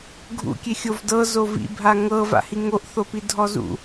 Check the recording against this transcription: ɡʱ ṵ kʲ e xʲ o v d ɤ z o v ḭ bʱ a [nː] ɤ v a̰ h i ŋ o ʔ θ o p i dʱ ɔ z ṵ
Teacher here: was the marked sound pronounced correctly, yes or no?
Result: no